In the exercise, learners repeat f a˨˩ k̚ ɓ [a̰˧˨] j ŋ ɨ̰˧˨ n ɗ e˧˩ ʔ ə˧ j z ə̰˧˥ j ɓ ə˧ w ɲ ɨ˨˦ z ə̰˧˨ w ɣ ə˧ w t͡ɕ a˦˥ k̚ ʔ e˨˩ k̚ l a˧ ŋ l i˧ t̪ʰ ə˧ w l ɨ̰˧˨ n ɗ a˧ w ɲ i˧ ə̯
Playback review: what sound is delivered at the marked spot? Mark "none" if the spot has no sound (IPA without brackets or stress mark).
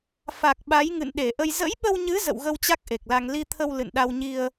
a˨˦